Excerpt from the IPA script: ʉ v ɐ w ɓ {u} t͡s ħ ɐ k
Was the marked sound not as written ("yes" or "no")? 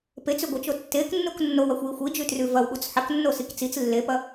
no